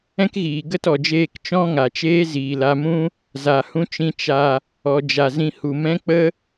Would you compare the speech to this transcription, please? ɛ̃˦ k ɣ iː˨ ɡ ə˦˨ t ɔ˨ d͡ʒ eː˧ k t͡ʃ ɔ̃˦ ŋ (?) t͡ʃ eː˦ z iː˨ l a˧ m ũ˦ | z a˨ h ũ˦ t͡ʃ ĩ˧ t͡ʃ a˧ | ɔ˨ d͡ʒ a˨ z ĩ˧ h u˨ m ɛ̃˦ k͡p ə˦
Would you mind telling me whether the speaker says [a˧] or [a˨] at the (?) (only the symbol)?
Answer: a˨